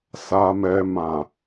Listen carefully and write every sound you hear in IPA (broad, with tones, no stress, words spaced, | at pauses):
sa˧mɛ˧ mã˨